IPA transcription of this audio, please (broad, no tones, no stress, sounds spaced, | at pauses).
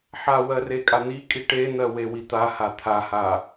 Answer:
ħ a w ɜ r e kʼ a n̪ i kʼ i ʈ e n̪ ɜ w e w i t̪ a h a t̪ʰ a h a